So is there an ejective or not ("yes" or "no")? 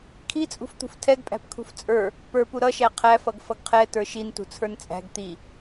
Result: yes